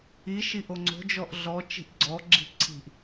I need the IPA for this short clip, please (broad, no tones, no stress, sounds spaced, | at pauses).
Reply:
i ʃ i ʔ o ŋ͡ǀ o̤ d͡ʒ ɔ ʔ ɮ ɔ t͡ʃ i̤ ʔ ɡ͡ǀ ɔ ɡ͡ǁ i̤ ǀʰ i̤ ʔ